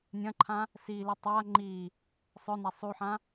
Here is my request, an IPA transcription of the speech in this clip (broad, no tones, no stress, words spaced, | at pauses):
nʲɐ̃ǃʰã | sili tˤa ŋ͡ǃi | sˤɵna sˤuħã